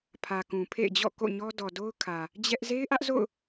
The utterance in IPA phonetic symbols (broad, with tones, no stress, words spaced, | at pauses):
pʰä˨kũ˨pʰḛ˦˨ɪ̯d͡ʑɔ̰˦˨ ko̰˦˨ɲɔ˦ dɔ˨do˦ʊ̯kʰä˨ | d͡ʑɛ˦ʔ ze˦ɪ̯ʔä˦ʔ zo̰˦˨ʊ̯